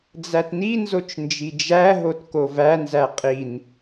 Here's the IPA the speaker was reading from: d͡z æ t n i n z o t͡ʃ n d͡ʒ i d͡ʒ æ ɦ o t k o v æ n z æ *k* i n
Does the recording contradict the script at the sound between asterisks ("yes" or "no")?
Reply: yes